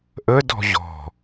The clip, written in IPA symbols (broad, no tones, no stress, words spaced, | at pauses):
ʔədɔ̤ ʑɔ̤